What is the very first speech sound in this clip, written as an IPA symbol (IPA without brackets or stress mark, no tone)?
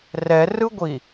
r